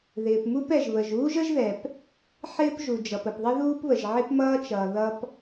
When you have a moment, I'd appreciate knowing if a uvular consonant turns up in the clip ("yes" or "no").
no